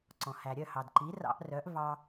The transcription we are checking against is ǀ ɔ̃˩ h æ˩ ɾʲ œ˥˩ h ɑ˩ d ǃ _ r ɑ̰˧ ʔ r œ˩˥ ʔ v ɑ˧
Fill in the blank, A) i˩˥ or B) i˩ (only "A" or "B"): A